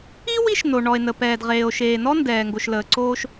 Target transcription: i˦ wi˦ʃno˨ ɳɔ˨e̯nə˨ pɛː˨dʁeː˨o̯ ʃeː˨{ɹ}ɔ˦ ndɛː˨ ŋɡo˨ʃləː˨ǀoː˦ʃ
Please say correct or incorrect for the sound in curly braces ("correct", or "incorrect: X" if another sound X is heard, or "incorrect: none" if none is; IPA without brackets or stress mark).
incorrect: n